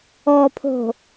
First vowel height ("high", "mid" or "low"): mid